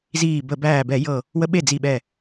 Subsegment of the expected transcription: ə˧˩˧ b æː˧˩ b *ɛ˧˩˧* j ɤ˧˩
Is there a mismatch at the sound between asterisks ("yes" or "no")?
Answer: no